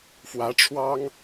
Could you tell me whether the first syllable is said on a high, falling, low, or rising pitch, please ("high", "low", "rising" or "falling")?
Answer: rising